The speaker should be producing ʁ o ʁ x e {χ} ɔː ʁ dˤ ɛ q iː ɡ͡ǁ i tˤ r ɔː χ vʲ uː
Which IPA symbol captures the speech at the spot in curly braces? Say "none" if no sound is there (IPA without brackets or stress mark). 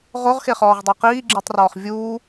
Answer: χ